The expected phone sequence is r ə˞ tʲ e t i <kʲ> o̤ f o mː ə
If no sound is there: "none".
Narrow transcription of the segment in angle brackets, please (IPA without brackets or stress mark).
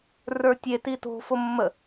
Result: t